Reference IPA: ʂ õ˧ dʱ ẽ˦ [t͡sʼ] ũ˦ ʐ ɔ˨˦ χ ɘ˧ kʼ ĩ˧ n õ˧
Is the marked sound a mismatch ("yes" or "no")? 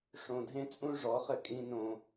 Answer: no